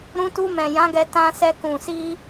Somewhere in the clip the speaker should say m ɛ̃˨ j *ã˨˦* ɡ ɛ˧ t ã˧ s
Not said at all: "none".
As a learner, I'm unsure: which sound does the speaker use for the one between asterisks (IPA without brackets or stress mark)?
ã˨˦